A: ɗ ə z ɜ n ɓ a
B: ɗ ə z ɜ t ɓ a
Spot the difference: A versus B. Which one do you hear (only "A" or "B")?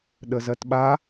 B